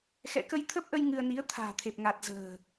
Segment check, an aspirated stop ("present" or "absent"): present